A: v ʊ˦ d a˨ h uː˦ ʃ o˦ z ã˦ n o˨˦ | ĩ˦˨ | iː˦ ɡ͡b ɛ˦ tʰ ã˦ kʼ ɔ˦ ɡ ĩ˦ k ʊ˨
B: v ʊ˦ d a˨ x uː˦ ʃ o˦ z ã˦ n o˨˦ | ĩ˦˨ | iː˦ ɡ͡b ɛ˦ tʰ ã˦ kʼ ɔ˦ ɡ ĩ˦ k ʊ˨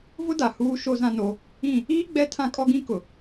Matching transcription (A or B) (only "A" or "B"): A